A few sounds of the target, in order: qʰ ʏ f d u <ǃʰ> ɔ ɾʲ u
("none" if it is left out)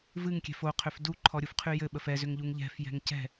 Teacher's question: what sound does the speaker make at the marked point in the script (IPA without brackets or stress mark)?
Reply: ǃʰ